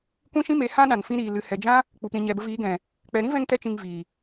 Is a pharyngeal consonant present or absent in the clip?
absent